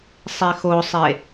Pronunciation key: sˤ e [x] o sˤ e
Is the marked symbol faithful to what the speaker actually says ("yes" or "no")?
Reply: yes